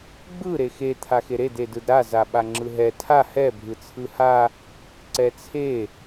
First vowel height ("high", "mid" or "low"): high